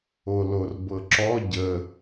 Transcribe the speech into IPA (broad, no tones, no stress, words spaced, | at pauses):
olorbɤǁɔ ɟə